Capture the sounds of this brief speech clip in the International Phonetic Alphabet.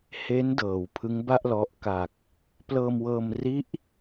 h e˦˥ n d ɤː˩˦ w pʰ ɯ˦˥ ŋ b a˥˩ ʔ l ɔ˦˥ ʔ k a˨˩ k̚ | p l ɤː˧ m w ɤː˧ m r i˦˥ ʔ

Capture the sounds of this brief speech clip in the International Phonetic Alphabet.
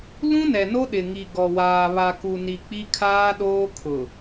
l ũ˦ n ɛ˨ n o˦ ɗ ɪ˨ ŋ i˨ ɡ ɔ˨ w aː˨ β a˨ k u˨ n i˨ k͡p i˦ kʰ aː˦ ɗ oː˦ kʰ ʊ˨

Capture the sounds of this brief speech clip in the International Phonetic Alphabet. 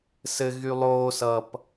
s ɘ ɣ y lˠ oː s ʌ p

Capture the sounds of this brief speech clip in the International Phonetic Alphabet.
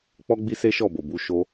k͡p ɔ˦ ɡ͡b i˦ s e˦ ʃ ɔ˦˨ b o˨ b u˧ ʃ o˦

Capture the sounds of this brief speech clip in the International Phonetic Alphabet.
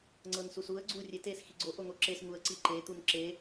ŋ͡ǀ ɤ n s u s u ə̯ ɡ͡ǀ u rʲ e t e s x i ɡ͡ǀ o ʔ o ŋ o ǁ e s ŋ u ə̯ ǀ i ǃ e t̪ u n ǁ e

